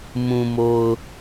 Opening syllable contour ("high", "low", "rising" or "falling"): low